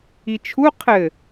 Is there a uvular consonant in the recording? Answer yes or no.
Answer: yes